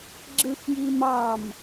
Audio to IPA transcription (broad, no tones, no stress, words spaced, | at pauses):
ɡ͡ǁɯxjimɑm